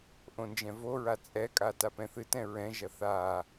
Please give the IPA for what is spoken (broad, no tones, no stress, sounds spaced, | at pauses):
ʔ õ n d͡ʒ ɛ̃ v o ɹ a t͡sʼ ɛ kʼ a t a p ɛ̃ θ ɨ t ɛ̃ ɹ ɛ̃ ʒ ɐ θ a